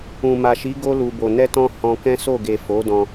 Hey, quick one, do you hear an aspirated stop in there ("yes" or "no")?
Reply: no